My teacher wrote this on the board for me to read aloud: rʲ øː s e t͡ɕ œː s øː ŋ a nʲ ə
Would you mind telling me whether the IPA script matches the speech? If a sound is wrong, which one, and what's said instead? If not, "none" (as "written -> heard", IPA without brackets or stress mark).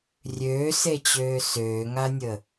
œː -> øː